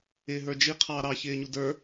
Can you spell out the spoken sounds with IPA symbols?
ɪːɦə˞d͡ʒi qʰɑːɾɑ çɪːɲudə˞

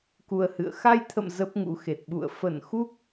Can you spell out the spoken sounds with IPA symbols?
ku˧ə̯hɨ̰˧˨ə̯ xa˧jt̪ʰə̰˧˨m zə˦˥p̚ŋṵ˧˥xe˨˩t̚ ɓṵ˧˨ə̯ fə˧˩nxu˦˥k̚

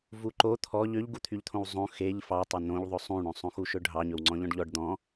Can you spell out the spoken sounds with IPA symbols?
vuǃo t̪ʰɔ ʎøʎɡut̪ʰyʎt̪ʰõw zˤõ xeʎ fɑtˤɵ nõʎðˤɵ sˤũɳõsˤõ xuʃɵɖʱɑ ɲɵwŋ͡ǀɔ̃ʎɔ̃ɖʎɔɖ d̪ɔ̃

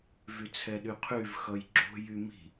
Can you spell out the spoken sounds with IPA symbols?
vyt͡sʰɛɗyqʰyv xʌjɡ͡ǁo̤ jymi̤

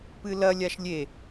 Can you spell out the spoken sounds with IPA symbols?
pɨlɐ lʲaʃlʲe

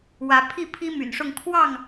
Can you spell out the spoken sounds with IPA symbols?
wä˨˦ pʰi˥˨pʰi˦my̰˨˩nʂʊ˥˨ŋ kʰwɑ˥˨ŋ

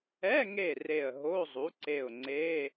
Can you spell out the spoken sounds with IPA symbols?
ɛ˧˥˧ŋe˧˩ re˧˩ə̯ ɦo˧˥˧zˤu˩˥ǀe˧˩ʊ̯ŋ͡ǀe˧˥˧

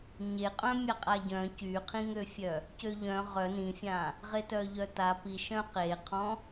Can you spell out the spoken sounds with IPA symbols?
ɲeqʼœ̃ mʲaqʼaɟœ̃ cyqʰĩŋøfʲœ | cøʎœ̃ ʁœ nĩfʲã | ʁetœʎœta piʃœ̃ qeqʰɔ̃

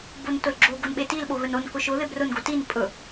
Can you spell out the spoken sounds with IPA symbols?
bontʊlɡ͡ǁo ɡonɓetil ɓoɣɵnon kʊʃʊ ðebrʊn ɡotin pʼɵ

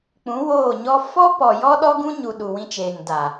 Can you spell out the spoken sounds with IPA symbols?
k͡pũ˨˦woː˦˨ɲɔ˦ fɔ˦pɔ˨ jɔ˦ɗɔ˦ɡũ˦ɲu˨ ɗu˨wĩ˧ t͡ʃeː˨ŋda˨

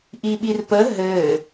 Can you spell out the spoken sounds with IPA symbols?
ʔiɓirpə ɦɘ

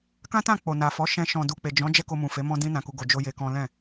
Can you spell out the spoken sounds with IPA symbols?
kã˦tã˦˨ k͡po˨na˨fɔ˨˦ ʃɛ̃˧ ʃɔ̃˨du˨k͡pe˨ d͡ʒɔ̃˨˦ d͡ʒɛ˦ko˧mũ˨ fe˨˦ mɔ̃˦dĩ˦nã˧ku˧ ɡo˧d͡ʒo˦je˧kɔ̃˦ lɛ̃˦˨

